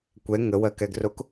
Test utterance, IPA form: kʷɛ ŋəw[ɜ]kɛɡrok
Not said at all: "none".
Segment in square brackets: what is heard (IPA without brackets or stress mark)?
ɜ